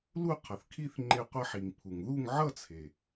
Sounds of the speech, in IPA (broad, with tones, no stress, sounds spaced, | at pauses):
l u˥˧ qʰ ʌ˩ θ kʰ i˥˧ θ ŋ͡ǃ e˧ qʷ ʌ˧ ħ i˩ ŋ pʰ u˩ ŋ ð u˥˧ ŋ ʕ ʌ˥˧ t͡sʰ e˩